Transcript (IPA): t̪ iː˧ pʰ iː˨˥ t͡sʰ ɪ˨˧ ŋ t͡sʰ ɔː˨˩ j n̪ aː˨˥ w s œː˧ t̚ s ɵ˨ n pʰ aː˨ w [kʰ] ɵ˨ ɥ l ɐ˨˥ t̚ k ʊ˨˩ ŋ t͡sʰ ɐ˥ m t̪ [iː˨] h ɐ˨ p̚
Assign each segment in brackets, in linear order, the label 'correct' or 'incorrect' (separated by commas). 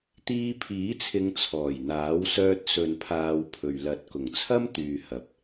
incorrect, incorrect